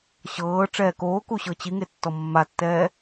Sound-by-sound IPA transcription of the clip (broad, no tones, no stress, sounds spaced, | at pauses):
ɕ ɤː ʈ͡ʂ ɛː k oː k u ɕ ɤ t͡ɕ i ŋ e tː ɔ mː a tː ɛː